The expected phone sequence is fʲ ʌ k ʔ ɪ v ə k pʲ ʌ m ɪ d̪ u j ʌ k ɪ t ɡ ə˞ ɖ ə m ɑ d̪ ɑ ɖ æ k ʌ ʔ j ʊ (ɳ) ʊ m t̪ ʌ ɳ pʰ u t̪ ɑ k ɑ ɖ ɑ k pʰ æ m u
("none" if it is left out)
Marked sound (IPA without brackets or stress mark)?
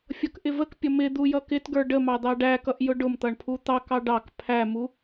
ɖ